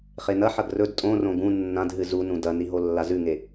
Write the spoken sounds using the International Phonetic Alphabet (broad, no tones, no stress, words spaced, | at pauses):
χenɐħɐɡ rɵd tʼõrõ ɡũ nːãd ɦɨzunũ dɐni ɦolːazʉŋe